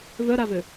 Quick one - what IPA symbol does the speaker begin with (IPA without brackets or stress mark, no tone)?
v